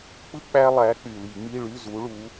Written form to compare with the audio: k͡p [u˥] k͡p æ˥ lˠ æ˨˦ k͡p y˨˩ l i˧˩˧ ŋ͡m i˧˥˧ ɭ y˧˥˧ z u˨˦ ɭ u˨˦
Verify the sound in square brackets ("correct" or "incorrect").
incorrect